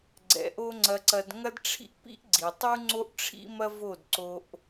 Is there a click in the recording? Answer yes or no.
yes